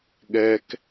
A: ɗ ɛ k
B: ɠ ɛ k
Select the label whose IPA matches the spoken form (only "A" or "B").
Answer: B